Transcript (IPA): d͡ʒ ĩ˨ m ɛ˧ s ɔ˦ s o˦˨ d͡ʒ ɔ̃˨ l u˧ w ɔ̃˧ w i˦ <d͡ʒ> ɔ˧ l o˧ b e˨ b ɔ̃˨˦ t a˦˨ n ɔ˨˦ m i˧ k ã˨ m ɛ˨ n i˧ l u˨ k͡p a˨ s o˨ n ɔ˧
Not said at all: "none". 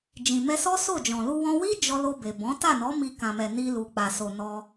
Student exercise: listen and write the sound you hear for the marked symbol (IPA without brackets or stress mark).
d͡ʒ